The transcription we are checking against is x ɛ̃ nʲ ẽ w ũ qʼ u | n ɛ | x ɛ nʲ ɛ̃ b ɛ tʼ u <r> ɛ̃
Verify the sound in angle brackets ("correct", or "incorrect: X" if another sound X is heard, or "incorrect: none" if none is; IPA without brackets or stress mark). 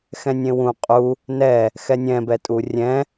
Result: incorrect: rʲ